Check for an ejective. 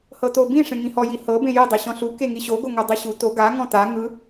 absent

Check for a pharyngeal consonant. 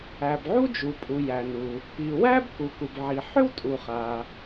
present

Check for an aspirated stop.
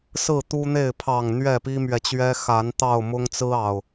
present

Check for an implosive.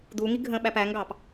present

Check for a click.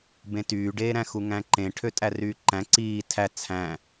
present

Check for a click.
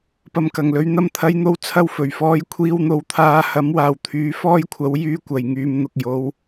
absent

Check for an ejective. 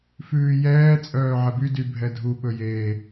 present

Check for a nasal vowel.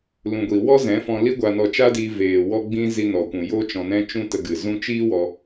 present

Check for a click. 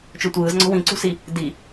present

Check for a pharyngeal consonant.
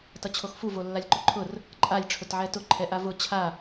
present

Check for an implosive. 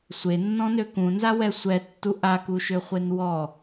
absent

